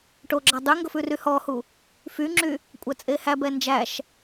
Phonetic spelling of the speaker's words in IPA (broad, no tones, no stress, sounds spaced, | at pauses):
ʈ o ɡ͡ǁ ɑ dˤ y ŋ ɡ ɵ f ʉ r y h ɔ h u | f y ŋ͡ǁ y | kʷʼ æ t͡sʼ e h æ b ɛ n d͡ʒ æ ʃ